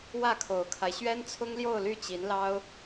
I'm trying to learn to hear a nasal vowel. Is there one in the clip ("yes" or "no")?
no